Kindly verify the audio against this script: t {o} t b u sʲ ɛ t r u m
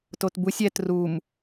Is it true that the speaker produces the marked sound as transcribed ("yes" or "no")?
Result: yes